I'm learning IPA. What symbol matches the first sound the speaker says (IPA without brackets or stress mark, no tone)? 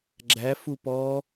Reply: ɡ͡ǁ